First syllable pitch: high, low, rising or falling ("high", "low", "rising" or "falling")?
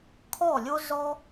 falling